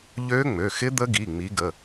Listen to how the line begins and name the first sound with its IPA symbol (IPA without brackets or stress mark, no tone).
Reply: ʎ